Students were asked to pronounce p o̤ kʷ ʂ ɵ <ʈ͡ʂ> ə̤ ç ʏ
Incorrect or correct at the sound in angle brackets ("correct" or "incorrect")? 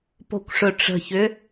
correct